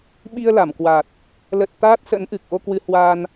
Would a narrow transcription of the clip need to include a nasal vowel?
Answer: no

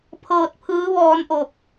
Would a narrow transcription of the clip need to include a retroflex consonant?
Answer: no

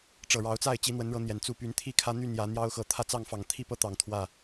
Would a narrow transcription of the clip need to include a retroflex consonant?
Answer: yes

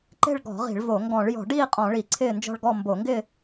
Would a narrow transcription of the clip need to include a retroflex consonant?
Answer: yes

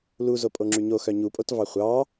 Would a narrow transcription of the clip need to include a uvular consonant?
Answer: yes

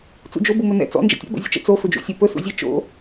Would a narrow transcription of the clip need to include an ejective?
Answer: no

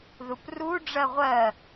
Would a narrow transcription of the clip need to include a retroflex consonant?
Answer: yes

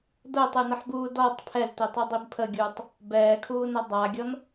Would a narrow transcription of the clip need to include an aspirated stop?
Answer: yes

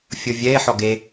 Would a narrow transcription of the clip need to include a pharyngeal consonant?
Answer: yes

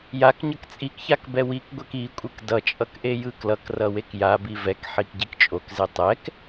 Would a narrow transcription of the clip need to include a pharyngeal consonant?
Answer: yes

